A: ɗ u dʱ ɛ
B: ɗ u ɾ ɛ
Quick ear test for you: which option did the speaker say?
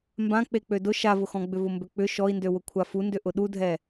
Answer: A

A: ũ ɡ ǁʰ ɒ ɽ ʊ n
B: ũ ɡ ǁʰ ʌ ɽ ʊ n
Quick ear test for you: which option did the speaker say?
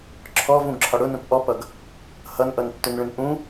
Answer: A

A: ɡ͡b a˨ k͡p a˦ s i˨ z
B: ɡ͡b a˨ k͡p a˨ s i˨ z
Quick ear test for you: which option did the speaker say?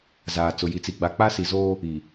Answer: A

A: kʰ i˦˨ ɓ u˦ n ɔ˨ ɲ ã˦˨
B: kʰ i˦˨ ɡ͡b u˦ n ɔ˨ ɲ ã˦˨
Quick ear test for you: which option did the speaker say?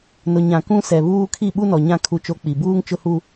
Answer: A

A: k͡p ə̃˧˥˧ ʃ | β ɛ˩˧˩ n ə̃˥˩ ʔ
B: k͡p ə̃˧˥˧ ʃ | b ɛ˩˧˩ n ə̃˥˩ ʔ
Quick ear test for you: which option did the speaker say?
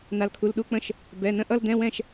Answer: B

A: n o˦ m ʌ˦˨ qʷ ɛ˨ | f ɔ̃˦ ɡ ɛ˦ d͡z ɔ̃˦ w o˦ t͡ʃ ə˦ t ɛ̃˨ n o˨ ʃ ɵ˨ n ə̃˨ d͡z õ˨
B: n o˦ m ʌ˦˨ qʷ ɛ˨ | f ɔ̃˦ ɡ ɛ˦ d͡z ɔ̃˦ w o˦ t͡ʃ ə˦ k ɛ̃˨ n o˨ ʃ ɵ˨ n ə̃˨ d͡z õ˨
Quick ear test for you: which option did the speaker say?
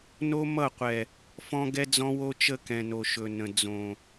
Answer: B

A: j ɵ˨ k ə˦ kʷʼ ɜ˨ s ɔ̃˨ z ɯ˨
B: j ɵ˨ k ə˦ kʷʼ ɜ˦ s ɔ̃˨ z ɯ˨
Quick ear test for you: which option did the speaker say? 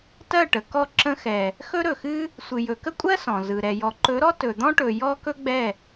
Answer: B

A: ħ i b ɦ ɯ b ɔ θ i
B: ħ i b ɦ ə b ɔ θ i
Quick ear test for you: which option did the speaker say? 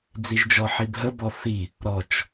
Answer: B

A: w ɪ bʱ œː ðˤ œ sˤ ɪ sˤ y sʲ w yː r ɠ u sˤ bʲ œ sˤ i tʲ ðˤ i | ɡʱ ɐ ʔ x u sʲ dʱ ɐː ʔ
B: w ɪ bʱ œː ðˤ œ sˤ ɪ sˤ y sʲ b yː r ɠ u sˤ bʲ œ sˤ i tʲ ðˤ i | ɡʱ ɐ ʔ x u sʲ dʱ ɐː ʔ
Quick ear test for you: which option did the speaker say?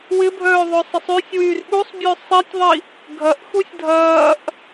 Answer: A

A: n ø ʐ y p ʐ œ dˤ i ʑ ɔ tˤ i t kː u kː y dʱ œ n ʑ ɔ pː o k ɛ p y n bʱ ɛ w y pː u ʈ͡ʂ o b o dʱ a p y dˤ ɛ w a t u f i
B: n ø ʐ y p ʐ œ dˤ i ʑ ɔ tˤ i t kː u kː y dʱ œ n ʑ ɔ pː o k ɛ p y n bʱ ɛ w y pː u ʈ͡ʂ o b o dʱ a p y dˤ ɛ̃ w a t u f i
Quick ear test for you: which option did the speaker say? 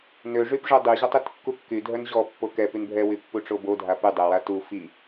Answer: A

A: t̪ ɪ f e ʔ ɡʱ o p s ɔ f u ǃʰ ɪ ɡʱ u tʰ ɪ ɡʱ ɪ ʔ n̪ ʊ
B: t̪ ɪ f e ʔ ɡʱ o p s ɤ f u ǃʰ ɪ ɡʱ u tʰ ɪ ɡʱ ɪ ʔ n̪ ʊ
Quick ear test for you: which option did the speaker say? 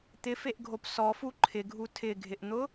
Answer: A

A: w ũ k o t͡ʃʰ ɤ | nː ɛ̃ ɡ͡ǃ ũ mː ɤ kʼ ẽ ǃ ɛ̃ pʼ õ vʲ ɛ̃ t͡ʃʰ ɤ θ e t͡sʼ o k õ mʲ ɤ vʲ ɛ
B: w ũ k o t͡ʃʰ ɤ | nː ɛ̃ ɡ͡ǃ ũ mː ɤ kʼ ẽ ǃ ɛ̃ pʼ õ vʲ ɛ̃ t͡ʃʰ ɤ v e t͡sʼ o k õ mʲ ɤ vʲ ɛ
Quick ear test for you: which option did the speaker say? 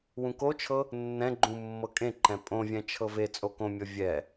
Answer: B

